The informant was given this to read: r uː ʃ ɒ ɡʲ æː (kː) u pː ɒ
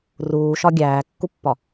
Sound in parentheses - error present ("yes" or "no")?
no